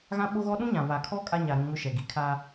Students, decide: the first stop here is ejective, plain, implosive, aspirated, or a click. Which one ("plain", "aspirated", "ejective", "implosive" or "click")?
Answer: implosive